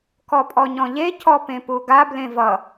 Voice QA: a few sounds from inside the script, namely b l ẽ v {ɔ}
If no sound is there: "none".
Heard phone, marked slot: ʌ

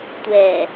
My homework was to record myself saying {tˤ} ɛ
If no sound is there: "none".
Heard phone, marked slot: tʷ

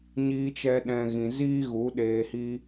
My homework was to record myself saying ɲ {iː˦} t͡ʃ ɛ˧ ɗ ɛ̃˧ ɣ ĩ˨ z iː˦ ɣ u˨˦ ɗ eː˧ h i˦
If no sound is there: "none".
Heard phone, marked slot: iː˧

